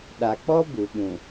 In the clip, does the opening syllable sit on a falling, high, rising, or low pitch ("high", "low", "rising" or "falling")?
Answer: low